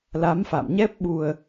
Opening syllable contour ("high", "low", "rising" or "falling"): rising